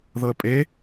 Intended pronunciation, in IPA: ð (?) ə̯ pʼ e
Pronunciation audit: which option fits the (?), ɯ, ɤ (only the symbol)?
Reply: ɤ